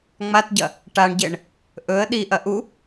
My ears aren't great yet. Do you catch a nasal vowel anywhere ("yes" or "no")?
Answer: no